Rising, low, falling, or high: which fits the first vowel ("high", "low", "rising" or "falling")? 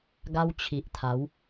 high